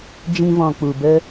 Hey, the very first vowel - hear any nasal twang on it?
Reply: yes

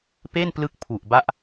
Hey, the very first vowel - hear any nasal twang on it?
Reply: no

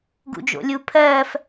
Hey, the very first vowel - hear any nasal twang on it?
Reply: no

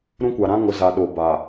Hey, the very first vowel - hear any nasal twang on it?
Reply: yes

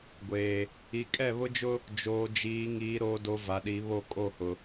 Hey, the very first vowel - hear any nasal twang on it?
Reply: no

